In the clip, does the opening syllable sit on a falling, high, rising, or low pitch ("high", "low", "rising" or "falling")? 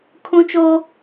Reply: high